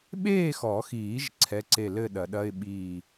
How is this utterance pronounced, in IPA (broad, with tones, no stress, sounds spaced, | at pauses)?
ɓ eː˥˨ x ɔ˨˩˦ x iː˨˩˦ ʒ ǀʰ ɛ˧˥˧ ǀ e˥˨ l ɘ˥˨ ɗ ɐ˨˩˦ ɗ ɐ˧˥˧ ɪ̯ ɓ iː˥˨